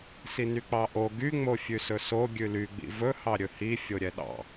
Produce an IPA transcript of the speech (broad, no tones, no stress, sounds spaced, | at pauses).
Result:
s i n y k͡p ɑ ʔ o ɡ y ŋ͡m o fʲ ʉ s ɵ s o ɡʲ ʉ l y ɡ͡b ḭ v ɵ h ɑ ɾʲ ɵ h i fʲ o ɾʲ ɛ ɗ ɑ̰